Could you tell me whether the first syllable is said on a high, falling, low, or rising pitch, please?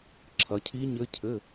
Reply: rising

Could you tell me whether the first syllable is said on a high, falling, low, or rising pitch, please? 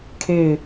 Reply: falling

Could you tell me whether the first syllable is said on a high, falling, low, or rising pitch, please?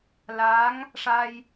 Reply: rising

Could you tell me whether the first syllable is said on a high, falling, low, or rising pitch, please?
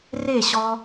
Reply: falling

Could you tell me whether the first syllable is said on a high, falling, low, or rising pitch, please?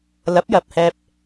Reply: rising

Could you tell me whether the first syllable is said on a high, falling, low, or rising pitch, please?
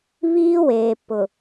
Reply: high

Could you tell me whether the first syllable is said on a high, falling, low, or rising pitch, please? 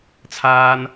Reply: high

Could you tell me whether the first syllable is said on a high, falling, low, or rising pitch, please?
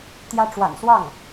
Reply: high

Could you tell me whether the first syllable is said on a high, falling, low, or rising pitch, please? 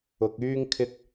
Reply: low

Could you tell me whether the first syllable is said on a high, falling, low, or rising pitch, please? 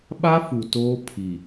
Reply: high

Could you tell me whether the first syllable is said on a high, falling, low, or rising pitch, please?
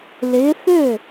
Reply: rising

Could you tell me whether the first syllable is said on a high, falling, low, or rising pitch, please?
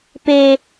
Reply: low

